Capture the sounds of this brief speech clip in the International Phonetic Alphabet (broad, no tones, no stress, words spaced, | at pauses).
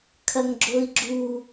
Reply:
kʰɐŋɡ͡ǁoi̯ɡ͡ǁu